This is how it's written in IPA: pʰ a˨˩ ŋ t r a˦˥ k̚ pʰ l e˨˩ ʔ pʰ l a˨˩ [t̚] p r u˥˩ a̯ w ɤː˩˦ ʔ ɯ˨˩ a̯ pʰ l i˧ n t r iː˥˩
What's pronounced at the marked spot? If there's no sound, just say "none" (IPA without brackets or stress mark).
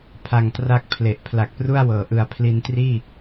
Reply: k̚